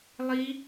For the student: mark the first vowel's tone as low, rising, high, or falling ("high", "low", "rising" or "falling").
high